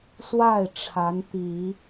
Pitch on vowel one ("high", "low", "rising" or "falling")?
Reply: falling